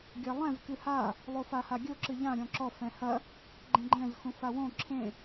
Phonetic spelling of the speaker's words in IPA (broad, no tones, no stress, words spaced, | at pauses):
ɡʲɐlˠɛ̃z kɨha | lˠofahaɡʲo ǁɨʎã ɾʲɔ̃ǁɔ fɛ̃hɐ | ɡ͡ǃɛ̃ɡ͡ǃɛ̃z xũfawõ ǁʰẽ